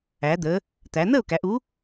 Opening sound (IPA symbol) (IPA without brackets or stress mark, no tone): æ